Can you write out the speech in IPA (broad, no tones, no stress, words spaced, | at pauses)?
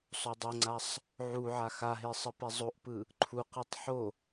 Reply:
sˤodˤɤŋ͡ǀasˤ | ʕu ʕaxaɦe sˤɯpɛzˤoʔpɯ | ǃʰuqɯtˤ ħo